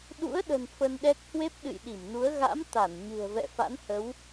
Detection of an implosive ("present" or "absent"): present